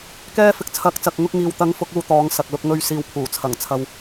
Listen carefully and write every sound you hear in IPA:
k ɛː˧ f ɪ˨ k̚ t͡sʰ ɐ˨˥ k̚ t͡s ɐ˨ k̚ ŋ ʊ˧ k̚ ŋ iː˨ w t̪ ɐ˨˥ ŋ f ʊ˨˥ k̚ uː˧ t̪ ɔː˨˧ ŋ s ɐ˨ k̚ l ʊ˧ k̚ ŋ ɵ˧ ɥ s iː˨ w pʰ uː˨˩ t͡sʰ ɐ˨˩ ŋ t͡sʰ ɐ˨ w

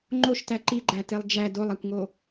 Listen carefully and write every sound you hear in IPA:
ŋ͡ǃ o ʃ t æ ǃ i ɡ͡ǃ æ t e lˠ d͡ʒ æ d o lˠ æ kʷ ŋ o

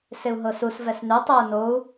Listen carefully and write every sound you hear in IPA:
s ɪ u̯ ɦ ɤ s u s v ɛ s n ʉ tˤ ʉ u̯ n o u̯

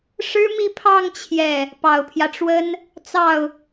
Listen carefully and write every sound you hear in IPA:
ʂ ɻ̩˥ m i˥˧ pʰ ɑ˥˧ ŋ t͡ɕʰ j ɛ˥˩ | p ɑ˨˩ ʊ̯ pʰ j ä˦ ʈ͡ʂ w ə˥ n | t͡s ɑ˥˩ ʊ̯

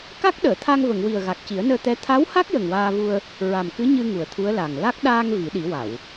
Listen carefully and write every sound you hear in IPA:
k a˦˥ k̚ ɗ əː˨˩˨ t̪ʰ a˧ ŋ v ə˨˩˨ ŋ w i˨˩ ə̯ ɣ a˨˩ k̚ c i˨˩˦ ə̯ n əː˧ t̪ ɛ˧˥ t̪ʰ a˧˥ w h a˦˥ k̚ j ə˨˩ ŋ w aː˧ v u˧ ə̯ | ɹ a˨˩ m k ɨ˧˥ ɲ ɨ˧ ŋ u˨˩ ə̯ t̪ʰ u˧˥ ə̯ l a˨˩ ŋ l a˦˥ k̚ ɗ aː˧ ŋ v i˨˩˦ ɗ i˨˩˦ w a˨˩˨ w

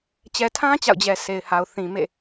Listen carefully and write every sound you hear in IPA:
t͡ɕ ɛ˨ tʰ ã˦ t͡ɕ a̰˦˨ ʊ̯ d͡ʑ ɛ˨ s e˨ ɪ̯ h a˨ ʊ̯ θ ĩ˨ m ḛ˦˨

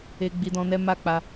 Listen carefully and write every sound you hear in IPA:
e˧ ɡ͡b i˧ d ɔ̃˧ n ɛ˦ m a˦˨ k͡p a˧

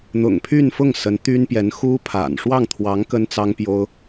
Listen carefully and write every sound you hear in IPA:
n̪ ʊ̰˨˩ ŋ pʰ y˥˧ n f ʊ˥˩ ŋ s ə˧˥ n t̪ y˥ n p j ɛ˧˥ n x u˥ pʰ a̰˨˩ n ʂ w ɑ˥˩ ŋ t̪ʰ w ɑ˧˥ ŋ k ə˥ n t͡s ɑ˥ ŋ p j o˥ ʊ̯

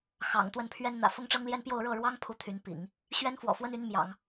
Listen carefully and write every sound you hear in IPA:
x ɑ̰˨˩ ŋ t̪ w ə˥˩ n pʰ ɥ ɛ˥ n n̪ ä̰˨˩ f ʊ˥ ŋ ʈ͡ʂ ɤ˥ ŋ l j ɛ˥ n p j o˥˧ ʊ̯ ɻ ɤ˥˩ ɻ w ɑ˥ ŋ pʰ u˧˥ t̪ʰ y˧˥ n p ḭ˨˩˦ ŋ | ɕ ɥ ɛ˥ n f w ɔ̰˨˩ f w ə˥ n y˧˥ n m j ɑ̰˨˩˦ ŋ

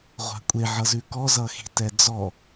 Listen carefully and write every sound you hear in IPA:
ʁʷ a̤ kʷʼ e ʕ ʌ z ʉ k ɔ z ʌ x i̤ t ɛ d͡z ɔ

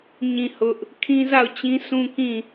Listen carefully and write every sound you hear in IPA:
ɲ ĩ˦˨ h ʊ˦ ʔ | kʰ ĩ˦ z a˦˨ ʊ̯ t͡ɕ ĩ˦ s ũ˦ k ĩ˦˨

